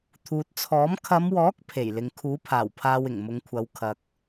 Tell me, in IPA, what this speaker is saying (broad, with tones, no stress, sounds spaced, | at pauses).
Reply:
t̪ʰ uː˨ t̚ t͡sʰ ɔː˨˥ m kʰ ɐ˨˧ m w ɔː˨˥ k̚ pʰ e˨˩ j l ɪ˨ ŋ kʰ uː˨˥ pʰ aː˨˩ w pʰ aː˧ w ɪ˨˩ ŋ m ʊ˨˧ ŋ kʷʰ ɐ˨˧ w kʰ ɐ˨ k̚